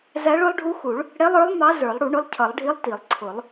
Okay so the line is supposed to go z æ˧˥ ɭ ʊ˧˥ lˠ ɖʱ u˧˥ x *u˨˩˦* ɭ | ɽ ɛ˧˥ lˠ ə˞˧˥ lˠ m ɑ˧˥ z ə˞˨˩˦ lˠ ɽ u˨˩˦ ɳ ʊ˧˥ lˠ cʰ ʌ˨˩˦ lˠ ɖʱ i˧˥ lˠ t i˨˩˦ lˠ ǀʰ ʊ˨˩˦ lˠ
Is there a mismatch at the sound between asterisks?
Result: no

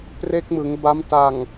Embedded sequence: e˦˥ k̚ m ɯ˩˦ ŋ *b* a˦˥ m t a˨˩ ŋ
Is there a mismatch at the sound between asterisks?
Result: no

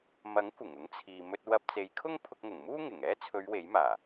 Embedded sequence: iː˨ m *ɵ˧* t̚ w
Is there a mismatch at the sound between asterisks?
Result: no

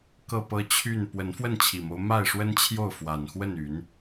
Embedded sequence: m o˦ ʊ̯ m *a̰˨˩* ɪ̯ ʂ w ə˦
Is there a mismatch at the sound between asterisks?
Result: yes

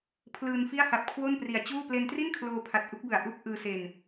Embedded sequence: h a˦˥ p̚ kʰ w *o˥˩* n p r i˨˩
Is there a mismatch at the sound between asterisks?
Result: no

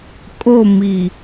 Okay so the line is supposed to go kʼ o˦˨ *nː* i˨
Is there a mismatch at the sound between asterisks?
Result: yes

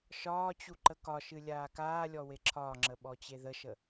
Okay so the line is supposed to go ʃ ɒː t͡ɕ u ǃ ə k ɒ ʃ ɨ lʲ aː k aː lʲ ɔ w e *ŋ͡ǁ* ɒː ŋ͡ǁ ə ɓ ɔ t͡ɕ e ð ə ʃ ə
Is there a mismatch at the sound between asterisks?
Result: yes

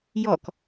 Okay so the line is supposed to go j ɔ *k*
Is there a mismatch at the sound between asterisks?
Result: no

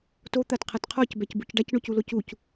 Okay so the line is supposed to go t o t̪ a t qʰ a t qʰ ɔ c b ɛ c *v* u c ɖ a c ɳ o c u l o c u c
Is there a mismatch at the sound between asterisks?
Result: yes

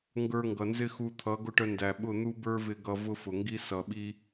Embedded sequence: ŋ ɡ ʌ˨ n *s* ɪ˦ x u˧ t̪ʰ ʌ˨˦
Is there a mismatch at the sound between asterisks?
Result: yes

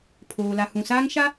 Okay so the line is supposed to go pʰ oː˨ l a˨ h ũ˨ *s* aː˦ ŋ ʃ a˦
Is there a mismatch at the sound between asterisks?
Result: no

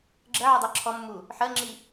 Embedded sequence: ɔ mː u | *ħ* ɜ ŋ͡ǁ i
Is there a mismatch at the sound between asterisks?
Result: no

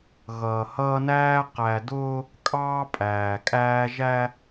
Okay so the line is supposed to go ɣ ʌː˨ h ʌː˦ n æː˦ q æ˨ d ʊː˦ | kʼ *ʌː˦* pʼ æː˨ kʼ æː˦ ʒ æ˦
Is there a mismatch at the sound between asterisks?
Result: yes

